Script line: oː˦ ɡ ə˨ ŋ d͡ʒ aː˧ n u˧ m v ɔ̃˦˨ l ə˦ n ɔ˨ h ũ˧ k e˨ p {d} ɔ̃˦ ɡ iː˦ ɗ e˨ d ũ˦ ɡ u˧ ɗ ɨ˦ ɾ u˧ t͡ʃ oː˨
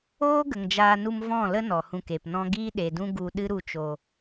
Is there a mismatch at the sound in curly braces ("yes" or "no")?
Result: yes